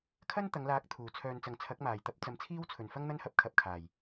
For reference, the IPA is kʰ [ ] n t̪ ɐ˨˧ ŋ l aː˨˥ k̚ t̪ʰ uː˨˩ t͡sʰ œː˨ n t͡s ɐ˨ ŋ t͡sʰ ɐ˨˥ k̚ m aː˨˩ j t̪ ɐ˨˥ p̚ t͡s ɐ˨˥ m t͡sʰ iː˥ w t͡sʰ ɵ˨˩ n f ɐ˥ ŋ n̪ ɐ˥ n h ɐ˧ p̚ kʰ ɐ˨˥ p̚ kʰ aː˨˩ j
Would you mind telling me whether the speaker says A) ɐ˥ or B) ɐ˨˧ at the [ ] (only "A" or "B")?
A